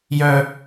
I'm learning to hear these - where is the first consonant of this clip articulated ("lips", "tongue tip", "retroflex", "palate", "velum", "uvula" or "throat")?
palate